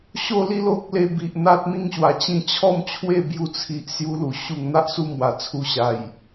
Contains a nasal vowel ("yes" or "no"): yes